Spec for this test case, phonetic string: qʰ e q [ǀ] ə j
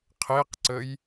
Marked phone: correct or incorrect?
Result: correct